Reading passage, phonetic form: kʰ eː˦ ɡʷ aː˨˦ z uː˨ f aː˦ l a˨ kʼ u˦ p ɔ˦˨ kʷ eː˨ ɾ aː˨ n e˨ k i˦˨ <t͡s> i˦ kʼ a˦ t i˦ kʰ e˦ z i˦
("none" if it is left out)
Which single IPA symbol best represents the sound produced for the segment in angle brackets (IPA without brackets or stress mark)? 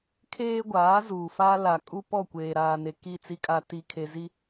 t͡s